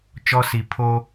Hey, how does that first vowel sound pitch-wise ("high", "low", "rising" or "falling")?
high